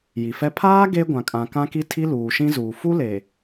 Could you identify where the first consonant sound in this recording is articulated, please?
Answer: palatal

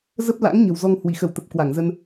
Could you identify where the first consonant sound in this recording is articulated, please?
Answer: alveolar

